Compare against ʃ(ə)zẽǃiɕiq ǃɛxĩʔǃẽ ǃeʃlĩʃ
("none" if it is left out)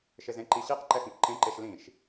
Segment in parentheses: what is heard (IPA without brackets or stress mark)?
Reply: ɪ